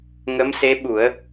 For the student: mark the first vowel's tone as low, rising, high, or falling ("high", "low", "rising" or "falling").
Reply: rising